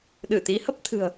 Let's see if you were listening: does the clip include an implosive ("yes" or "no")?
yes